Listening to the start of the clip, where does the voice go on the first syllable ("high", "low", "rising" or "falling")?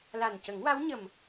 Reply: low